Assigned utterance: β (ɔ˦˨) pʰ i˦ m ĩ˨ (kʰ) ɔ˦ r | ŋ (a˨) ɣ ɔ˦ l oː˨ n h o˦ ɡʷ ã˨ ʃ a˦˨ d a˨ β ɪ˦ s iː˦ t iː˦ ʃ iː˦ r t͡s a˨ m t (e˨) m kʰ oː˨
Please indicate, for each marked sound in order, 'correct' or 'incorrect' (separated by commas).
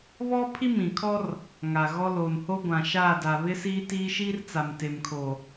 incorrect, correct, correct, correct